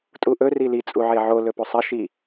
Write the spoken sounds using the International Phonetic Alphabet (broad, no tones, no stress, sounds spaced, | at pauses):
tʼ u ʔ ɵ r i l i t͡sʼ u ʕ e ʕ o l ɵ p o sˤ ɐ ʃ i